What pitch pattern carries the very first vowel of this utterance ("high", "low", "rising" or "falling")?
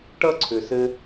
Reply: high